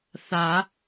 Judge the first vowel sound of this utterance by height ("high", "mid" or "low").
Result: low